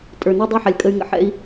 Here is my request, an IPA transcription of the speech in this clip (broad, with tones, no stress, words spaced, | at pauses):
tʼə˞˨nɛ˦dˤe˦ħa˨lʲ kʼə˧y̯ŋə̰˨ħɛ̰˦i̯